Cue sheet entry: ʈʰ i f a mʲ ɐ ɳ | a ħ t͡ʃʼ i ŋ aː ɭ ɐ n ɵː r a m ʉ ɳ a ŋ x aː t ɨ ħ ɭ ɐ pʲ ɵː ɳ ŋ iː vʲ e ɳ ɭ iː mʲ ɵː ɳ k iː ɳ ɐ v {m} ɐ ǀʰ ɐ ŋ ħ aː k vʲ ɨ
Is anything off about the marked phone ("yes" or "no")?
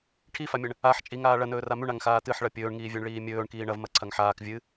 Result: no